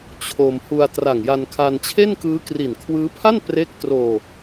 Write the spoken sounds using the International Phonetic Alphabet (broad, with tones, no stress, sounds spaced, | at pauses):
t͡ɕʰ o˧ m h u˧ a̯ t r a˨˩ ŋ j a˧ n kʰ a˧ n t͡ɕʰ e˥˩ n k ɯː˦˥ k r i˨˩ n kʰ w ɯː˦˥ pʰ a˥˩ n p r e˦˥ k̚ t r oː˧